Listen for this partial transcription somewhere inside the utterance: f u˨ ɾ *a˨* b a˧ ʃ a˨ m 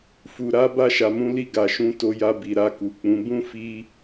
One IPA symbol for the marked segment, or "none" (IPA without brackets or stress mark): a˨˦